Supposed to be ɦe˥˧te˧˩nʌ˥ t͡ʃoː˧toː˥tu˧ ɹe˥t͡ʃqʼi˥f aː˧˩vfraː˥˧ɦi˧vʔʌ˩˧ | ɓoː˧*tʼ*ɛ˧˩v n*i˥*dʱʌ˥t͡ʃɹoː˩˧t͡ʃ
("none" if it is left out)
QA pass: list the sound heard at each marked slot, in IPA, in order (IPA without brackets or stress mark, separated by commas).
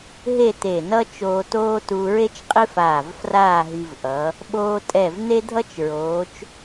tʼ, e˥